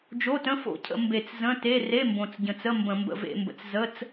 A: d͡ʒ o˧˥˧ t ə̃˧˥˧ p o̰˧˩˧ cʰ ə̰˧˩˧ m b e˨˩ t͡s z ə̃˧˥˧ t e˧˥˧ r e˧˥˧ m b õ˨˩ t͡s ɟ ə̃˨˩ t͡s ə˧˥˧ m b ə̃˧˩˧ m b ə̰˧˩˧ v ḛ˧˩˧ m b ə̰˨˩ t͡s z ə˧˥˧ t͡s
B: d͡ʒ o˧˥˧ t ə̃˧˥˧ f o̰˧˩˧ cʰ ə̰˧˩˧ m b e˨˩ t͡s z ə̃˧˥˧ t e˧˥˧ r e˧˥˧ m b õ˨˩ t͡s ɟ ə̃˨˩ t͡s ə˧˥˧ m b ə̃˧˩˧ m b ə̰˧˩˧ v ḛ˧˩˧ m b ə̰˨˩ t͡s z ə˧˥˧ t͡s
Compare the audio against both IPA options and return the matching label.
B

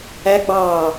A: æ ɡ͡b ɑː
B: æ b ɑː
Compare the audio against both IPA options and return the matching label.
A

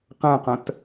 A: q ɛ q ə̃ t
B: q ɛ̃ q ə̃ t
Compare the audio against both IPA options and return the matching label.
B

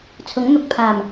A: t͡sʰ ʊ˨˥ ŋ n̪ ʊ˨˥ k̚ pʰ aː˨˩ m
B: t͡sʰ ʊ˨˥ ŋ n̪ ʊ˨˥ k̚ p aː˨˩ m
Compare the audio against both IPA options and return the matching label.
A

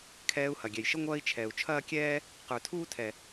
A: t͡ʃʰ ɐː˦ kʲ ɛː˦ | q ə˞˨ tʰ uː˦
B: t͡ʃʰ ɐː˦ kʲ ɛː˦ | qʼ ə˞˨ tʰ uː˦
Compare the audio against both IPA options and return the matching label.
A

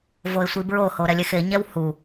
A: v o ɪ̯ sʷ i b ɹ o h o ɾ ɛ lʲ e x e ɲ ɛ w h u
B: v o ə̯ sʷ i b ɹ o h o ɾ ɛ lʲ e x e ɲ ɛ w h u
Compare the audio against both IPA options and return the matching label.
A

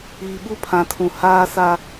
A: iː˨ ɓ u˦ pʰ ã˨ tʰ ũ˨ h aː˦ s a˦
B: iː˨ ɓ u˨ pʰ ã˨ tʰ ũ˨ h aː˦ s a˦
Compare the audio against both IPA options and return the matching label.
A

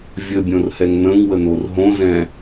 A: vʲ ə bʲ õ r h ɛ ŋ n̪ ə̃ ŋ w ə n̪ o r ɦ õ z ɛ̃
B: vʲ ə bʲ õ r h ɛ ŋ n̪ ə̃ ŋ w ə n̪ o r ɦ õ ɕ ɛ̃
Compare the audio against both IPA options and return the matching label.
A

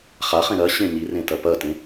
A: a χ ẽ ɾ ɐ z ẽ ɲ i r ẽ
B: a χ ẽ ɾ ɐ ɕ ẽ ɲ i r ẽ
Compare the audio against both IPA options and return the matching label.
B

